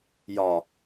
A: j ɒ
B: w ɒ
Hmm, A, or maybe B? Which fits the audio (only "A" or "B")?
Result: A